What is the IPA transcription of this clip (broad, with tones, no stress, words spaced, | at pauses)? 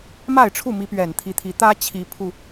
ma˥˨ɪ̯ʈ͡ʂʰu˥˨mi˨˦pɥɛ˨˩n t̪ʰi˨˦t̪ʰi˨˦ t̪ä˦t͡ɕʰi˨˦ pʰu˨˩